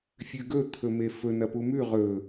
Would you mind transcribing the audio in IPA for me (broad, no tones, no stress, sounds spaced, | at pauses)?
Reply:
fʲ ʉ ɡ ɵ t̪ʰ ɵ m e f ɵ n ɐ p u m ʉ ʁ ɵ